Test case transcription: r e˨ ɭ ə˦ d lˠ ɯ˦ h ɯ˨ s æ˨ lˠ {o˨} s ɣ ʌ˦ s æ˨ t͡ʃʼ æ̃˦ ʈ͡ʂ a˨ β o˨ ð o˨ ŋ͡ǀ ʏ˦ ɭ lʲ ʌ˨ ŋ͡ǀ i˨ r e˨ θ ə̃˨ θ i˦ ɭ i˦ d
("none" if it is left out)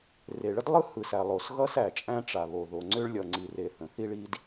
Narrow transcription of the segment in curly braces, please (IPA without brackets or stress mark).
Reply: o˨